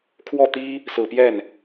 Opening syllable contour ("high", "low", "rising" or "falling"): falling